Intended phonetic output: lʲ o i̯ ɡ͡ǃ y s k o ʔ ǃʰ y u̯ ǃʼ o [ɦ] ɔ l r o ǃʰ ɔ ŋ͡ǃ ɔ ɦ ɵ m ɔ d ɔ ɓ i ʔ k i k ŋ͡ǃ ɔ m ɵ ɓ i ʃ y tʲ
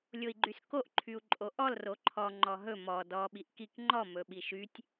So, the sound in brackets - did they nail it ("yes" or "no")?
no